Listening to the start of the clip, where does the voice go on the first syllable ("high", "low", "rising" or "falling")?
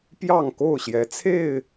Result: falling